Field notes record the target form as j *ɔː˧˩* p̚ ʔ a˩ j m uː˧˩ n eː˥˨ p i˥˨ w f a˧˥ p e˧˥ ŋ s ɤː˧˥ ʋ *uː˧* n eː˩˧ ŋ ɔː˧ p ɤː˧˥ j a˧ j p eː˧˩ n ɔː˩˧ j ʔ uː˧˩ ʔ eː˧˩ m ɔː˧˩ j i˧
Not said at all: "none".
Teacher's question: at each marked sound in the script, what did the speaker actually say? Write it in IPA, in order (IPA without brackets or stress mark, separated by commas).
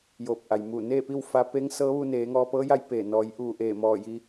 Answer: oː˧˩, u˧